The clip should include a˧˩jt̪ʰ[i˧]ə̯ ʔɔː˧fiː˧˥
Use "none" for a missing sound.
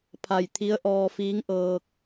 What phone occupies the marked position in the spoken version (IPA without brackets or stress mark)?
i˧˥